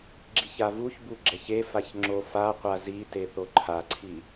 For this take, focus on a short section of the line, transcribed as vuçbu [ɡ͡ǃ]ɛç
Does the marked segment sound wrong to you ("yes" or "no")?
yes